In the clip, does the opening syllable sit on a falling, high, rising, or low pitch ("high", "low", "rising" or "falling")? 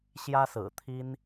high